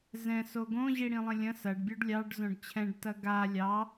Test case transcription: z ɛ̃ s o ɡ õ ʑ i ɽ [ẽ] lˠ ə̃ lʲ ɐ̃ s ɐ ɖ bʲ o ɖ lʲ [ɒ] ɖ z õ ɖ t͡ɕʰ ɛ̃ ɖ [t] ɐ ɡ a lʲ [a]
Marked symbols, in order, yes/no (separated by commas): no, no, yes, no